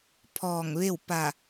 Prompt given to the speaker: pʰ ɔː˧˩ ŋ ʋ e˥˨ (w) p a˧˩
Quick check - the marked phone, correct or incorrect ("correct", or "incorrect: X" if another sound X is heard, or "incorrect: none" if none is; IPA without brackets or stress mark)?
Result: correct